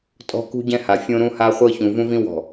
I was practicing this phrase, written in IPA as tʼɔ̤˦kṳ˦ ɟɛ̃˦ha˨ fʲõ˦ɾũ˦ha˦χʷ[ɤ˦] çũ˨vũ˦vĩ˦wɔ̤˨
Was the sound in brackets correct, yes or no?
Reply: yes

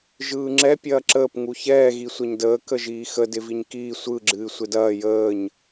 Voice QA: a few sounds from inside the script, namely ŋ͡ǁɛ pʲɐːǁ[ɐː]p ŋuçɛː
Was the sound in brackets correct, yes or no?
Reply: no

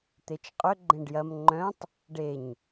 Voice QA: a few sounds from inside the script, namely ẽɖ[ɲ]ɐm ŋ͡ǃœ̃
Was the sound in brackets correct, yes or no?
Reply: no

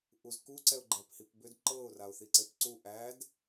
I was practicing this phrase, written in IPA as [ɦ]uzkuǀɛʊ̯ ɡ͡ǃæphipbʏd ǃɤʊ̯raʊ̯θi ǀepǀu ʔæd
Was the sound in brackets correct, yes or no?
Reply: no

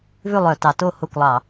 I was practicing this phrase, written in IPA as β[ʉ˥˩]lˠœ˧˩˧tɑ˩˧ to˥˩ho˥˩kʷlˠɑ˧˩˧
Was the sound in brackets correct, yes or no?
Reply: yes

